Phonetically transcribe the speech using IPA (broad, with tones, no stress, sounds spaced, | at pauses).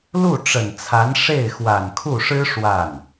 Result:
l u˥˩ ʈ͡ʂ ə˨˩ n t͡sʰ a˧˥ n ʂ e˥˩ ɪ̯ x w a˨˩ n kʰ u˥˩ ʂ ɻ̩˥ ʂ w a˥˩ n